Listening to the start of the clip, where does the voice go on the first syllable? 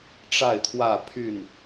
falling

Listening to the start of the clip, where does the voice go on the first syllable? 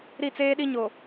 falling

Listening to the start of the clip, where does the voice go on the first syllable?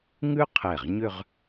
high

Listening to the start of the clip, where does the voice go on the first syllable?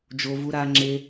low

